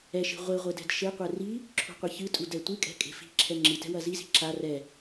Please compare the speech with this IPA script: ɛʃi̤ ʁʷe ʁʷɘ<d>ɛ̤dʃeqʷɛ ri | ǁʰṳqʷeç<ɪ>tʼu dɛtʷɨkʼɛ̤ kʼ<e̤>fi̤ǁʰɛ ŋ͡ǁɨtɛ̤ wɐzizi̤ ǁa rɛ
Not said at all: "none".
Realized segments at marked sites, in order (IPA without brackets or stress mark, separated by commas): d, ɨ, e̤